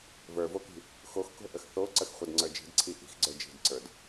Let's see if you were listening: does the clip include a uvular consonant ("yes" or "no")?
yes